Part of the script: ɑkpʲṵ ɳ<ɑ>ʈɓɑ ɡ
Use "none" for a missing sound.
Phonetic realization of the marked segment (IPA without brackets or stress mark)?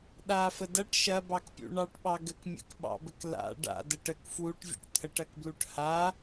ɑ